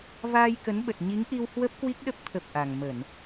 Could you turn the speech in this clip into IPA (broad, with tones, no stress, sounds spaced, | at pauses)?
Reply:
v aː˧ j k ə˨˦ n ɓ ə˨˩ t̚ ɲ i˨˦ ŋ ʔ i˧ w h w ə˦˥ p̚ k w i˦˥ k̚ ɗ ə˦˥ p̚ t̪ʰ ə˨˩ p̚ ʔ a˨˩ ŋ m ə˧˩˨ n